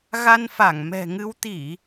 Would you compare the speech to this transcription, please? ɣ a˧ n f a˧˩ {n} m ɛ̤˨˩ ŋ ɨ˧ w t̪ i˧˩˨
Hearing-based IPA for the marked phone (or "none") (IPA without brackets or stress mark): ŋ